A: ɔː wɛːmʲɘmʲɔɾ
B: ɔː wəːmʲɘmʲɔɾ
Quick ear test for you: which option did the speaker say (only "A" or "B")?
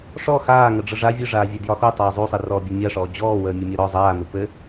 B